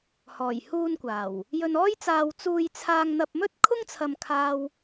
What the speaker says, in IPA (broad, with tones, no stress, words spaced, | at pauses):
hɔː˨˩jhuː˧nkʷaː˨˩w | jɵ˧nɔː˥jt͡saː˧w t͡suː˧jt͡sʰaː˧ŋn̪ɐ˧p̚mɵ˥t̚ kʰʊ˥ŋt͡sʰɐ˧m kʰaː˥w